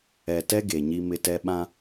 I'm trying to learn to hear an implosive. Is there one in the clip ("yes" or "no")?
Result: yes